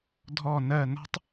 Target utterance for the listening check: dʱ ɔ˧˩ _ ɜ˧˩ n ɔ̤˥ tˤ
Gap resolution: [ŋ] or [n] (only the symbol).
n